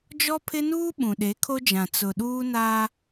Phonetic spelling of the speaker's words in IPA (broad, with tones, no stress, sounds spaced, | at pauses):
d͡ʒ ɔ˦ pʰ ɪ˦ n uː˦ ɓ ũ˨ ɗ e˨˦ kʰ o˦ d͡ʒ ã˨ t͡s ʊ˨ ɗ uː˦ n aː˦